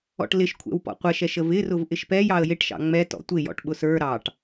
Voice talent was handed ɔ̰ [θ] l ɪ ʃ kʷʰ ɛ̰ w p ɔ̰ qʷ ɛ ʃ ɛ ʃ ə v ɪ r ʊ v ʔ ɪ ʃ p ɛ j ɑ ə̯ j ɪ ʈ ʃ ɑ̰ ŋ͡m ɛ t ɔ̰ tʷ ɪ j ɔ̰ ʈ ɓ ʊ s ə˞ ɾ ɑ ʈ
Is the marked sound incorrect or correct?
incorrect